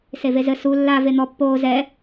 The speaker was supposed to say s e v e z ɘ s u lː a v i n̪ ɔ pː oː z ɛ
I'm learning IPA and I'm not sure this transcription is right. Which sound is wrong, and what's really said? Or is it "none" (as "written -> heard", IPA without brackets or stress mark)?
i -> e